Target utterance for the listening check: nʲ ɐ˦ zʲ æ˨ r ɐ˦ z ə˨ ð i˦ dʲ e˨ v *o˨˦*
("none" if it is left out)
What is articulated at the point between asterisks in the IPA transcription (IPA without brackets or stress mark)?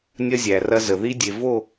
o˦˨